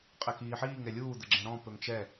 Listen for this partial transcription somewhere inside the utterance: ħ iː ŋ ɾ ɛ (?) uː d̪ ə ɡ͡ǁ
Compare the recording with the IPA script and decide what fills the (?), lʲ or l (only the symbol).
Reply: lʲ